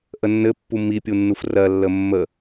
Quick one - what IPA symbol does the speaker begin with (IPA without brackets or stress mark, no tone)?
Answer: ʔ